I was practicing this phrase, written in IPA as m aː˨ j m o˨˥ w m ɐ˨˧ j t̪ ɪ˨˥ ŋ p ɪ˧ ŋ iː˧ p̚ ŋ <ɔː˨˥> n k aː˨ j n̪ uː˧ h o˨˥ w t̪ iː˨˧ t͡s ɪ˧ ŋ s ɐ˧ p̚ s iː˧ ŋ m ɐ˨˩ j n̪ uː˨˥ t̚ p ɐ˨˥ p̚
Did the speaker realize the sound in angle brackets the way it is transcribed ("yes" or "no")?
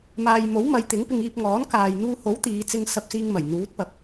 yes